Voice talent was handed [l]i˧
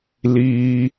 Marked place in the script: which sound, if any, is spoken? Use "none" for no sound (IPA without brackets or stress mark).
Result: l